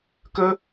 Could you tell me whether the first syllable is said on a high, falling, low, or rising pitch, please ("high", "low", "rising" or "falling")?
high